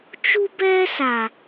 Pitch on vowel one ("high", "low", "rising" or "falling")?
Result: high